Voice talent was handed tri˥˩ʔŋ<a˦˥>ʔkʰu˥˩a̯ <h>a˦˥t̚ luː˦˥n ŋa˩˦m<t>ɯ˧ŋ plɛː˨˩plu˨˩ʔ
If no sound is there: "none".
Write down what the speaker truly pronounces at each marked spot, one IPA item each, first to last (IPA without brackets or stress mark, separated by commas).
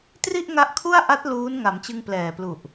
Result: a˦˥, ʔ, t͡ɕ